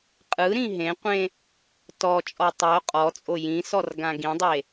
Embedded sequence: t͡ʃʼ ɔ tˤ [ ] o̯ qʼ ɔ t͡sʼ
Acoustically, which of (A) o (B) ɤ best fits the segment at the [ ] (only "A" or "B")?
B